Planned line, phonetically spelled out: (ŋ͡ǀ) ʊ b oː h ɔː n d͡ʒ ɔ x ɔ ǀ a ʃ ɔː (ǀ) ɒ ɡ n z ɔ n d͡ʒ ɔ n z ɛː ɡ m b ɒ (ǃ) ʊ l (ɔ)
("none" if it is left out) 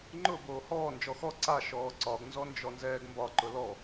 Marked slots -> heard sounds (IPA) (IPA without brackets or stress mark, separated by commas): ŋ͡ǃ, ǀ, ǃ, ɔ